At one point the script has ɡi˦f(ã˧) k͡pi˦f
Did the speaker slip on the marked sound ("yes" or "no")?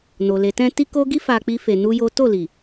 yes